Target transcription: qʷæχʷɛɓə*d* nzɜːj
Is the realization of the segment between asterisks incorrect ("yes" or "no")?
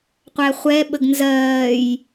yes